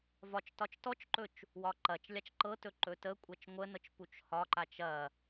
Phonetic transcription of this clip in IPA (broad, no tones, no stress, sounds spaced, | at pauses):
v ɒ t͡ʃ t ɒ t͡ʃ t ɔ t͡ʃ ǃ ɵ t͡ʃ | w ɒ ǃ ɐ t͡ʃ lʲ a t͡ʃ ǃ ɤ t ɵ ǃ ɵ t ə kʷʼ ɐ t͡ʃ ŋʷ ə n ɤ t͡ʃ p u t͡ʃ h ɒ ǃ a t͡ʃ ɐ